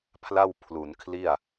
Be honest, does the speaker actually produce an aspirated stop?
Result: yes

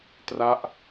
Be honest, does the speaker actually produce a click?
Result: no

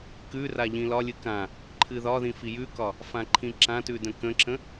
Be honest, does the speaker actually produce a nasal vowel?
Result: yes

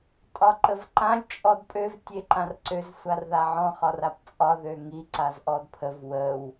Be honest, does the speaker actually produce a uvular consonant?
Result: yes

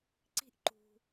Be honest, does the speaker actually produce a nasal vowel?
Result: no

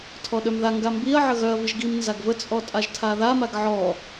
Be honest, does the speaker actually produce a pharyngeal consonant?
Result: yes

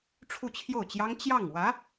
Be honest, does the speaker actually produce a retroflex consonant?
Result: yes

